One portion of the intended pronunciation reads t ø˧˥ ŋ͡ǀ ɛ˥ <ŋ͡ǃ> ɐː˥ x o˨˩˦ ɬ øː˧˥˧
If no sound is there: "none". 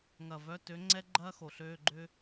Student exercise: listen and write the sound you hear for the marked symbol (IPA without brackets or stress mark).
ɡ͡ǃ